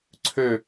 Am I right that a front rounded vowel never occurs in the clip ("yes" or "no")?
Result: no